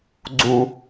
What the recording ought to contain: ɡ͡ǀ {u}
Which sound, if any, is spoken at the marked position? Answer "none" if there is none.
u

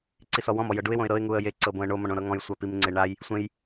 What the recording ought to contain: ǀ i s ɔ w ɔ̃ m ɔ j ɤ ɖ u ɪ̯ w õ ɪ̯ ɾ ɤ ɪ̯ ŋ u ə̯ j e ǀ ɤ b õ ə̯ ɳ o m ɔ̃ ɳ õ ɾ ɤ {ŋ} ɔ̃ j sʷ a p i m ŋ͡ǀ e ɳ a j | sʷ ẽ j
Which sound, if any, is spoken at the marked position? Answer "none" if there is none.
ŋ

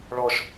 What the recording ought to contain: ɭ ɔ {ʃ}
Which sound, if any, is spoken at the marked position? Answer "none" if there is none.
ʃ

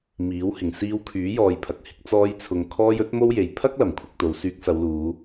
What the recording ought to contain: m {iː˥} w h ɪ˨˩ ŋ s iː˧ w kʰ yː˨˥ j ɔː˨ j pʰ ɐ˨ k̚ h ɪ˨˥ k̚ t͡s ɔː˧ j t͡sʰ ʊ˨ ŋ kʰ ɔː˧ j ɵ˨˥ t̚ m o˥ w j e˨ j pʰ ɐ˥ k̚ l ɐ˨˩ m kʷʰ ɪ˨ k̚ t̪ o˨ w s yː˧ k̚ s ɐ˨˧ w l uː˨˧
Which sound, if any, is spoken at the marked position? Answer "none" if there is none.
iː˨˥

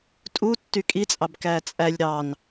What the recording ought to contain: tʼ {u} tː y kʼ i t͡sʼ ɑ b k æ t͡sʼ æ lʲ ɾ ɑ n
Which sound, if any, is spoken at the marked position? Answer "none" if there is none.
u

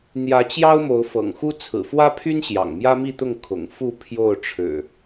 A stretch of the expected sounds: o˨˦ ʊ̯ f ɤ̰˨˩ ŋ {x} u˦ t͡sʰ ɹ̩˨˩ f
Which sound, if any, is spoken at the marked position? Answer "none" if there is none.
x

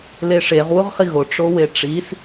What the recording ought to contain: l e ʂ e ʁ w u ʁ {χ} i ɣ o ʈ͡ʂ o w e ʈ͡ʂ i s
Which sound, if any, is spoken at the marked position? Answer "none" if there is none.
χ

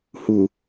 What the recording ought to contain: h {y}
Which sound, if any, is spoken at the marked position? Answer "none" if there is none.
u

